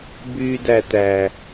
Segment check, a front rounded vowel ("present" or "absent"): present